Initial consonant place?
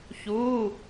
palatal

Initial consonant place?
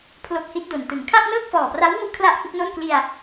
labial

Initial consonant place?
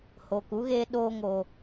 glottal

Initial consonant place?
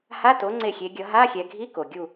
glottal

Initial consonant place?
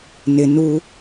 alveolar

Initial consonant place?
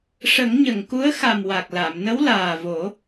retroflex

